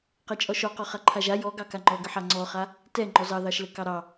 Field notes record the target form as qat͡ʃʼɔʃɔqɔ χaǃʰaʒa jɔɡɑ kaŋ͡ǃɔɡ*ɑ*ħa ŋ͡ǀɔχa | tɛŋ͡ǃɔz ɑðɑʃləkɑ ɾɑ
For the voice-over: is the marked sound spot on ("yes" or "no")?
no